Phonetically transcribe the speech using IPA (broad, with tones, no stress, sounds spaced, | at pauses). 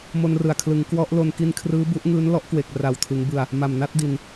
m o˧ n r ɯ˨˩ a̯ kʰ l ɯ˩˦ ŋ k w ɔ˦˥ ʔ l o˧ n k i˧ n kʰ r ɯː˦˥ b u˦˥ ʔ ŋ ɯː˦˥ n l ɔ˦˥ ʔ k w e˨˩ k̚ r a˨˩ w tʰ ɯ˩˦ ŋ b ɯ˨˩ a̯ | m a˨˩ m n a˥˩ t̚ d i˨˩ n